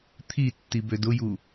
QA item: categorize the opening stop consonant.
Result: aspirated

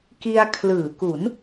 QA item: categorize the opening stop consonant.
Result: plain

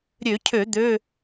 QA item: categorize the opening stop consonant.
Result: aspirated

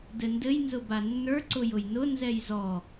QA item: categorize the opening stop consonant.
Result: plain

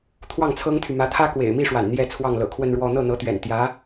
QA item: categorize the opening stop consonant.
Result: aspirated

